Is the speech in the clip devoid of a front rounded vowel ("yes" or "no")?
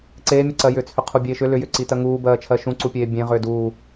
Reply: no